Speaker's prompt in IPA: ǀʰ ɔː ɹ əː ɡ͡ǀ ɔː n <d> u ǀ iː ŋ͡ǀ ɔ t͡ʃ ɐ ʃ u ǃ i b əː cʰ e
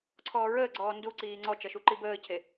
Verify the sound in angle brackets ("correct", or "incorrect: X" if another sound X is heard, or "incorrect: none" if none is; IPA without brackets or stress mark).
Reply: correct